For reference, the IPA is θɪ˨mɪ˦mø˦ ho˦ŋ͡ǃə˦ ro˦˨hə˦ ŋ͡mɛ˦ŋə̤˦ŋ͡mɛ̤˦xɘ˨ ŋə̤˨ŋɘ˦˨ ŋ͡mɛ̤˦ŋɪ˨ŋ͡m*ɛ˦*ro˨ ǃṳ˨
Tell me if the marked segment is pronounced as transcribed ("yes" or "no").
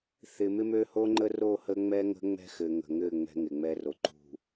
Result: yes